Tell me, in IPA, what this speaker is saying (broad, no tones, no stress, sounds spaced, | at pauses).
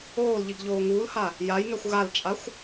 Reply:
oː l ʎ i ɡ ʎ oː ŋ uː l h a | j a j ŋ ɛ xʷ ɣ a l t͡ʃʼ a xʷ